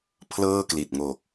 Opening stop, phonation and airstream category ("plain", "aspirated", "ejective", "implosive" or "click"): aspirated